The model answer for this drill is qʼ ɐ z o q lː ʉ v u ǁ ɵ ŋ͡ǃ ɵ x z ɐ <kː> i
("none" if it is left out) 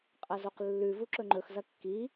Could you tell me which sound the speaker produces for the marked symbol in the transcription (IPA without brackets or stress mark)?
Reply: kː